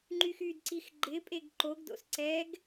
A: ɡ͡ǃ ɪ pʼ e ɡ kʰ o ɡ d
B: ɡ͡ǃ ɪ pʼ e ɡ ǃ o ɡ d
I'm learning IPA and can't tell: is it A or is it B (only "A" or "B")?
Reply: B